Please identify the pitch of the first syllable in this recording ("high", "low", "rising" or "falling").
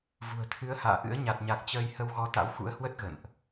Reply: low